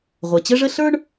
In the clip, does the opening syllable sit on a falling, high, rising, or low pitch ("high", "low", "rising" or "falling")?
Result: low